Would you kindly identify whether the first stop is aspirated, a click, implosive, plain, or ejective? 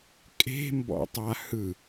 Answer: ejective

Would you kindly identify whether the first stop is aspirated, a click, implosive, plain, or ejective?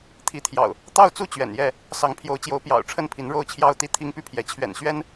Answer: aspirated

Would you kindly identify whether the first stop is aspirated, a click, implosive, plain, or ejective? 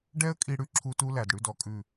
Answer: plain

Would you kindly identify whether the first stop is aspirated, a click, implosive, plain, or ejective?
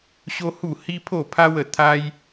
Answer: aspirated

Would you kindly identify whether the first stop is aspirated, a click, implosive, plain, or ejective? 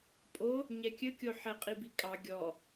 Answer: ejective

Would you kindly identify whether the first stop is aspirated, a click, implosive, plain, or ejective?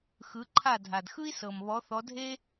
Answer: click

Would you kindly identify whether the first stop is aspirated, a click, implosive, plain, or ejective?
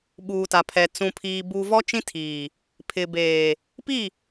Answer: implosive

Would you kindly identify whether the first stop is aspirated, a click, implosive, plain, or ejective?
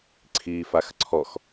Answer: click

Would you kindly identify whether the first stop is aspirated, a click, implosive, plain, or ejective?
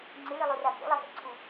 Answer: click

